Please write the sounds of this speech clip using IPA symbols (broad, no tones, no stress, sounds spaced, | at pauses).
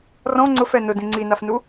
r ɔ̃ ŋ͡ǀ ʊ f ɛ n ʊ d ĩ ŋ͡ǀ i n a f n u